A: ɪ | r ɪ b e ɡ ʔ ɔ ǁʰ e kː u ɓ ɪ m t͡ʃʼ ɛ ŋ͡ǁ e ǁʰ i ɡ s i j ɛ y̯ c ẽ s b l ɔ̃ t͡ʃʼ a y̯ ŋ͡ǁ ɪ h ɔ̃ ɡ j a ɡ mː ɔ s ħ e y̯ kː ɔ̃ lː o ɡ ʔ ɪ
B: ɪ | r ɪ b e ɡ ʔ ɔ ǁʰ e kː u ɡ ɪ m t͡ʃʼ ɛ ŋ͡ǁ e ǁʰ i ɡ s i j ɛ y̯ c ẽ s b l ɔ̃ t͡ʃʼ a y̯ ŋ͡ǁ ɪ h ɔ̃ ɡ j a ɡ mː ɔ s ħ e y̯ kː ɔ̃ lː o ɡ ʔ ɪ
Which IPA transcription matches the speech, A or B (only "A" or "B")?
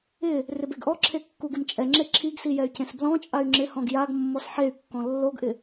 B